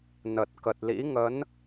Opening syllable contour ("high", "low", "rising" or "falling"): low